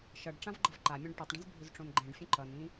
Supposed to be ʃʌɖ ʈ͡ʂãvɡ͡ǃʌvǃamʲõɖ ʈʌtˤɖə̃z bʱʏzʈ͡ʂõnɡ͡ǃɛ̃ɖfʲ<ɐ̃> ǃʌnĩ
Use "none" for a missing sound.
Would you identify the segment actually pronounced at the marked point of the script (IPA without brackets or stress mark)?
ə̃